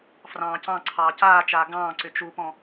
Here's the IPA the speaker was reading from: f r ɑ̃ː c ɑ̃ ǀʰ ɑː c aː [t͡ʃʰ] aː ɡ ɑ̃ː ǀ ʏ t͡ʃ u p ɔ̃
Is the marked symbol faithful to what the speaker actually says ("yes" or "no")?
no